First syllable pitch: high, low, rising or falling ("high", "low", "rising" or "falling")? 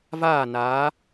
falling